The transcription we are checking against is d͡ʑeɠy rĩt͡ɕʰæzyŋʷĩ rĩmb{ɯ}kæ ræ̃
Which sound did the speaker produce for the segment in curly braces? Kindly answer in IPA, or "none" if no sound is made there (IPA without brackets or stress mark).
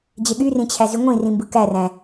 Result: ɯ